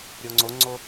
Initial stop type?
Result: click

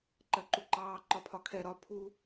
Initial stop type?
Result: click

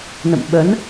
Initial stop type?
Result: implosive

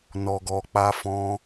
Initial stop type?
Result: plain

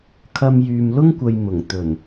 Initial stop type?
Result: aspirated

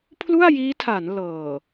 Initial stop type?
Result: aspirated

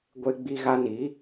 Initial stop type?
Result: plain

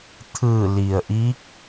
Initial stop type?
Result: aspirated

